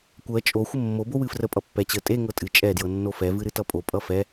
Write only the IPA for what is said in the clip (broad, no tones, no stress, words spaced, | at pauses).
kʷɜ t͡ʃʼoxʷə mːobo wɨfrə pʼʌpːɛ t͡ɕə tʼe ŋɤtʼɨ t͡ʃʼɛdjɤ nːofɛ vɨɾɨtʌpʼo pʼʌfɛ